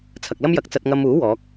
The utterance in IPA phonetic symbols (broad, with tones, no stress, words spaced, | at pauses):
t͡sʰɐ˨k̚lɐ˥mjɐ˨˥k̚t͡sɐ˧t̚ ŋɐ˧muː˨˥ wɔː˨˥k̚